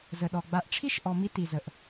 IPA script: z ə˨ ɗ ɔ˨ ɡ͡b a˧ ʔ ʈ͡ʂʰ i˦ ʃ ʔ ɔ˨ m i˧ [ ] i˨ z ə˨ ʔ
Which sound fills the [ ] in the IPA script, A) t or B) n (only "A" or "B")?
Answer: A